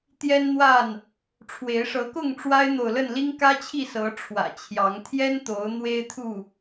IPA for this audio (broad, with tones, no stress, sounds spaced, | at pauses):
t̪ j ɛ˦ n n̪ w a˥˨ n | ʈ͡ʂʰ w e˨˦ ɪ̯ ʂ ɤ˨˦ k ʊ˥˨ ŋ ʈ͡ʂ w a˦ ɪ̯ n̪ o˨ ʊ̯ l ə˥˨ n l i˦ ŋ k ä˦ t͡ɕʰ i˥˨ s ɤ˨˦ ʈ͡ʂʰ w ä̰˨˩ t͡ɕʰ j ɑ˨˦ ŋ t̪ʰ j ɛ˦ n t̪ o˨˦ ʊ̯ n̪ w e˦ ɪ̯ t̪ʰ u˥˨